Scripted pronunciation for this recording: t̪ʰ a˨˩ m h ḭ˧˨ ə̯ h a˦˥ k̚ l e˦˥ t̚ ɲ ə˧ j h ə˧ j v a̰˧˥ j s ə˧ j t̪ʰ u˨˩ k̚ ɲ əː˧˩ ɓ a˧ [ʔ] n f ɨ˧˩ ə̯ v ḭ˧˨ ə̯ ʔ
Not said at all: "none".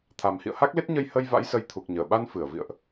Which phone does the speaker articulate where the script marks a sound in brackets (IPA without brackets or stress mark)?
none